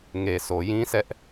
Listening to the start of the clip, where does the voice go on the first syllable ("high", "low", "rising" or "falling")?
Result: low